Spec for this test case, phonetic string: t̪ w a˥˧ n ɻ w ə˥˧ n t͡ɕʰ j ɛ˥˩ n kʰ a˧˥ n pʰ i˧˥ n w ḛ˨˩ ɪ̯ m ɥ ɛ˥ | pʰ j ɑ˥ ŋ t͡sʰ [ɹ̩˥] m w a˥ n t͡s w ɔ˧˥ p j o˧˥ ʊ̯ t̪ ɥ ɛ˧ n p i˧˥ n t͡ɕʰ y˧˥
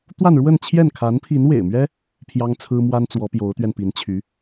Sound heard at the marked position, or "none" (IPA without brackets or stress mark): ɹ̩˥